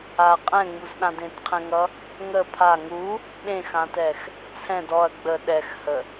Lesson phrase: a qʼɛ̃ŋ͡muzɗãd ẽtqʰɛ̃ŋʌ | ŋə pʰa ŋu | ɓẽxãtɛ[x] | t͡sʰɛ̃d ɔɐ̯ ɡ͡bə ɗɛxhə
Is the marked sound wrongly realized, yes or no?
no